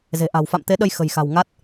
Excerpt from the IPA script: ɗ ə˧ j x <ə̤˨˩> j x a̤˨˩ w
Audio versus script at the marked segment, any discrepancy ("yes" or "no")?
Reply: no